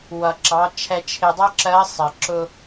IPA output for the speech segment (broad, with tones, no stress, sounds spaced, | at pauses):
w ʌ˩ ǁ ɑ˩˧ t͡ʃʰ ɛ˧ t͡ʃʰ ɪ˧ dˤ ɜ˥ ǁ ɜ˧˥ sˤ ɜ˩ ǁ ʊ˧